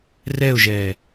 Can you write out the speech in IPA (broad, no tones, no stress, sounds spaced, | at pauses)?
r ɛ ʊ̯ ʒ ɛː